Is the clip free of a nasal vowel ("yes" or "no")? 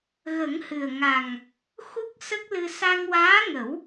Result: yes